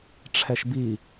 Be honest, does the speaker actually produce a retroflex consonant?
yes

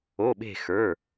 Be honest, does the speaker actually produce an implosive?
yes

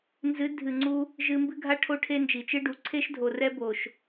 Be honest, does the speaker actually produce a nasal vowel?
no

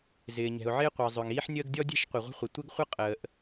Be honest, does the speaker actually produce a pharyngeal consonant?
yes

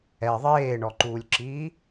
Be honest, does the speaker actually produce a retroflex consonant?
yes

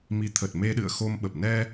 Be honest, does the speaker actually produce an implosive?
yes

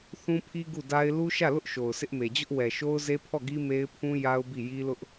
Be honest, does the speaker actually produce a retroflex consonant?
no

